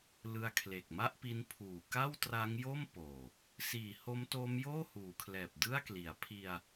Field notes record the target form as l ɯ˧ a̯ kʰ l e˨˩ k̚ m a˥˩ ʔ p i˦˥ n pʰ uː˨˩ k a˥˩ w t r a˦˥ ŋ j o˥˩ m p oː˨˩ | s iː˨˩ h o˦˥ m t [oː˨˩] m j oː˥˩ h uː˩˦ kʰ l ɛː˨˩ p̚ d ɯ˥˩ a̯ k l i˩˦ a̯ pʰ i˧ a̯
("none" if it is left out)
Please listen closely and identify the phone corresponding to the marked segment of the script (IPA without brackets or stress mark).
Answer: oː˦˥